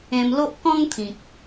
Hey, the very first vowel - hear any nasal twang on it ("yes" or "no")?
yes